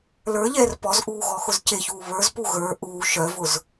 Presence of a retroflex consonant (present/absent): absent